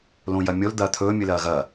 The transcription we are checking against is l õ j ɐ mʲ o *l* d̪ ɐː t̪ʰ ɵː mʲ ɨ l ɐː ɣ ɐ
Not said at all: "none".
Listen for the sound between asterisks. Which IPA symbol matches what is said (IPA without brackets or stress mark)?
l